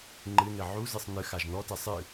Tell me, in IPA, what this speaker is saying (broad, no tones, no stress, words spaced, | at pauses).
ŋ͡ǃɨnɘ ʕuzɨsˤ nɨxaʒ nɔtɛ sˤɨ